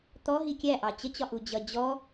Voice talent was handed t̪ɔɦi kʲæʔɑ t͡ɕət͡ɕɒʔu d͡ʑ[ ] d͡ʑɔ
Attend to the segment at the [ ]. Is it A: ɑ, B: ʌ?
B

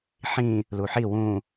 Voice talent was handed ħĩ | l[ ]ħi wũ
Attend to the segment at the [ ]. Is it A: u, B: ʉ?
A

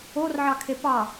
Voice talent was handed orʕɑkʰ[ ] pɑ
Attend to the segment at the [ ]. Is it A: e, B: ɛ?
A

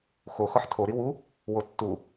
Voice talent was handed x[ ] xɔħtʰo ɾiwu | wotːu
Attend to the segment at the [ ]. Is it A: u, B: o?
B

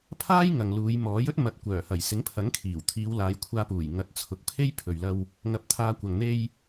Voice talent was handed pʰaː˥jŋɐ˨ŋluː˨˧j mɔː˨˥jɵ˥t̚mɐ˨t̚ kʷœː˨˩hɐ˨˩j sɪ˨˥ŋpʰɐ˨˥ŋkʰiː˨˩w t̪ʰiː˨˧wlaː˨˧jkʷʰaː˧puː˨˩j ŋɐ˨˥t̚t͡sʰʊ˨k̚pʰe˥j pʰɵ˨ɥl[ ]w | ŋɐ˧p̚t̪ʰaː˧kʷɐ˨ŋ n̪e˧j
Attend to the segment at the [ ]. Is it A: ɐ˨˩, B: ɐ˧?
B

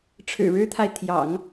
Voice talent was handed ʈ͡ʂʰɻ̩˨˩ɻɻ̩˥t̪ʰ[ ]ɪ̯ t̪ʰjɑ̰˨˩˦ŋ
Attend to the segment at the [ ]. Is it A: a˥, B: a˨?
B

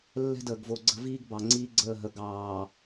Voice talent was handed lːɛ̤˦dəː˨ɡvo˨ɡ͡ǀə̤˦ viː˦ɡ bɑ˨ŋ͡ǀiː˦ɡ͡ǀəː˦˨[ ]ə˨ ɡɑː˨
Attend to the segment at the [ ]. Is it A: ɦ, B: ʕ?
A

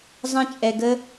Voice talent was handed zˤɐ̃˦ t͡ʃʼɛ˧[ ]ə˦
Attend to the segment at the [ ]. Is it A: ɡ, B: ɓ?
A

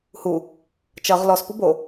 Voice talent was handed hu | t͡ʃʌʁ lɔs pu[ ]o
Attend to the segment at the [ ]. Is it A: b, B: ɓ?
A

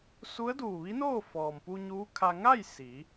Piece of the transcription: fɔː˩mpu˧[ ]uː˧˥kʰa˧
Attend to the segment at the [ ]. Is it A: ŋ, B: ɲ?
B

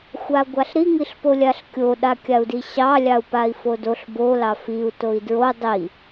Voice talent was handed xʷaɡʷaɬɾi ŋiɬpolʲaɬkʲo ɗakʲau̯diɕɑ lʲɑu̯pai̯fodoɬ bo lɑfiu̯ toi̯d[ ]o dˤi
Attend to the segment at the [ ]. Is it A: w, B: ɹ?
B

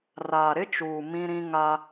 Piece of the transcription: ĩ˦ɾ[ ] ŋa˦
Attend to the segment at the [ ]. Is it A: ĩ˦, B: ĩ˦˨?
A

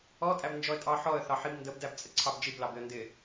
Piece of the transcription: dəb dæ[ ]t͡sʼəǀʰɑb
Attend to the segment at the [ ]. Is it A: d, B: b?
B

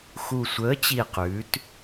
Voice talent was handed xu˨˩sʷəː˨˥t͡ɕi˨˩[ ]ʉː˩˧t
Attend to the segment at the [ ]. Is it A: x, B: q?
B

